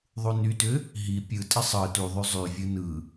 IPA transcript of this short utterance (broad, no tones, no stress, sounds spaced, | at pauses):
ðˤ u n y t ʏ | ɦ i pʲ ɯ tʼ ɪ sˤ ɯ t u ðˤ y zˤ y vʲ ɯ n ɯ